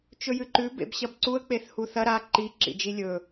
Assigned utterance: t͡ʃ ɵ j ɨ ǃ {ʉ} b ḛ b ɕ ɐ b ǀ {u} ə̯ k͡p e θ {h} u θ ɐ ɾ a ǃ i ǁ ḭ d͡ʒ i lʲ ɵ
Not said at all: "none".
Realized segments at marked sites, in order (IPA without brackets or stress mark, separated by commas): ʉ, u, h